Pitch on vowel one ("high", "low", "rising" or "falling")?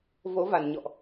rising